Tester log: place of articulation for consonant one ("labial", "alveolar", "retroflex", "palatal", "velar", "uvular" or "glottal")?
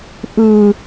glottal